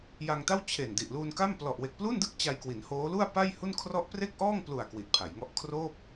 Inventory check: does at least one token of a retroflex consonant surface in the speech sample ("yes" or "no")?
no